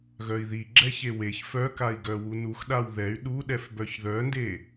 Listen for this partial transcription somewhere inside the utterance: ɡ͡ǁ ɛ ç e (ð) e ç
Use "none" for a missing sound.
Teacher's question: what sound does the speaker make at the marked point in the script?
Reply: w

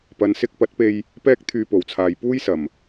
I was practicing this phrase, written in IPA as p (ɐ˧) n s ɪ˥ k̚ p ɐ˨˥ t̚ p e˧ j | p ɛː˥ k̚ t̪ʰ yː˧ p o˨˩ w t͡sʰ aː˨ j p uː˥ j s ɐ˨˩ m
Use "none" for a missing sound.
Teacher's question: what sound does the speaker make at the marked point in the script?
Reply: ɐ˨˧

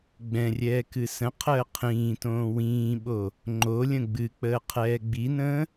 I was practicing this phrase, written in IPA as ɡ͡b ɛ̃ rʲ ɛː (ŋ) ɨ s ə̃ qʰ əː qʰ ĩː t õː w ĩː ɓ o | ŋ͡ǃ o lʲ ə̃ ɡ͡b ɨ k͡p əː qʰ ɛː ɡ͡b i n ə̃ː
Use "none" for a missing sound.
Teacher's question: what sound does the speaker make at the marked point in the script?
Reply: k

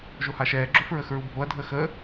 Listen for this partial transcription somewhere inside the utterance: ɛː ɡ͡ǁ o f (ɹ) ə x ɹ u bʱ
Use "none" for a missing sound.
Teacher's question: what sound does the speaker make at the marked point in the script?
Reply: ɹ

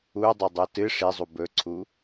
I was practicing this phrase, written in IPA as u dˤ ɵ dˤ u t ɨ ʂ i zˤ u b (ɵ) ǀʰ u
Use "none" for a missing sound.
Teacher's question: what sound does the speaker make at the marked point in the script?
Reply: ɵ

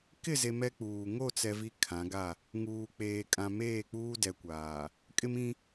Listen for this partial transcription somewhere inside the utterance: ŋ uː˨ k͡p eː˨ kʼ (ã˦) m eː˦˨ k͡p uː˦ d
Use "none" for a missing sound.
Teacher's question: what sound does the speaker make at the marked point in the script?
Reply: ã˨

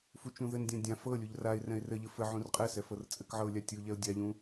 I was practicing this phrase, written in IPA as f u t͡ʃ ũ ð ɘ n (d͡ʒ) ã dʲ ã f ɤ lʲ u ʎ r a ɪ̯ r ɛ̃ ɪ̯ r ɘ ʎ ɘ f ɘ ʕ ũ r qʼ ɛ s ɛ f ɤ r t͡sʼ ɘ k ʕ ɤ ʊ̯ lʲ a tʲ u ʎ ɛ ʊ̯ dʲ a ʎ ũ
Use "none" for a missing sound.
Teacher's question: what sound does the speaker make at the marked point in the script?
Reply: dʲ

